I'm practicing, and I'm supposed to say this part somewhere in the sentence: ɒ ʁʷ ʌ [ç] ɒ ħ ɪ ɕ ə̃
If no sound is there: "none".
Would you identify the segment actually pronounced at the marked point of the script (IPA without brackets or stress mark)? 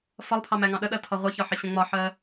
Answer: ç